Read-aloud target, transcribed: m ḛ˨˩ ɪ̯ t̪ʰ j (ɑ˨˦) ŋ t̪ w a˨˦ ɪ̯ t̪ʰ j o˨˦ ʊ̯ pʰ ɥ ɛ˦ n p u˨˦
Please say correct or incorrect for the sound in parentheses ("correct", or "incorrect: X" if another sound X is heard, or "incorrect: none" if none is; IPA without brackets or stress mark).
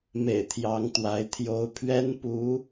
correct